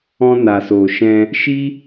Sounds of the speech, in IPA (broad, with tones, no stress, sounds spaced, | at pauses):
ɔ̃˧ n a˨ s oː˨ ʃ ɛ̃˧ | ʃ i˦